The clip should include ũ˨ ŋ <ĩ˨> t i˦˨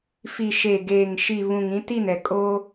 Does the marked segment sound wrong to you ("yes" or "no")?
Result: yes